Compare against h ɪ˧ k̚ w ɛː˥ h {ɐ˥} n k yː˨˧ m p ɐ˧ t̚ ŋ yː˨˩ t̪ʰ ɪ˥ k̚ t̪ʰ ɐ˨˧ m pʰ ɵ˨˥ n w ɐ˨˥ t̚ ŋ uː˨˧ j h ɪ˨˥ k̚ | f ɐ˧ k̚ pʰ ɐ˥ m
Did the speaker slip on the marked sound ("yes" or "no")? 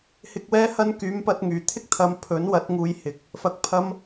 no